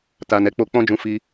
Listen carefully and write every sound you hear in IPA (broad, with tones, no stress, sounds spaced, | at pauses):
t a˨ n ɛ˨˦ k͡p o˧ k͡p ɔ̃˦ d͡ʒ ũ˧ f i˧